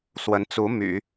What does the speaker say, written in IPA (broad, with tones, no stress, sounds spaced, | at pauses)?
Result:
s w ə˧˥ n t͡s u˧˥ m y̰˨˩˦